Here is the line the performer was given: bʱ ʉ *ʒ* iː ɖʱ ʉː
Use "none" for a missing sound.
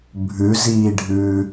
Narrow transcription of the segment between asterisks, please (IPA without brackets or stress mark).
z